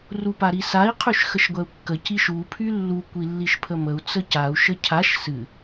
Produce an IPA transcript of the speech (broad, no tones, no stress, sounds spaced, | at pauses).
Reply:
r u p a ɾ i s a i̯ qʰ y ʃ x ə ʃ ɡʷ ɛ u̯ kː ə c i ʃ u pʰ y lː u kʷ i lː i ʃ pʰ ə m ə u̯ t͡s ə c a u̯ ʃ ə cʰ a ʃ s ɨ